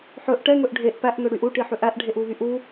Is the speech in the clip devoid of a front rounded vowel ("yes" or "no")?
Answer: no